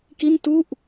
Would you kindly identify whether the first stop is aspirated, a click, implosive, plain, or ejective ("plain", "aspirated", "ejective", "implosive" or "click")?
plain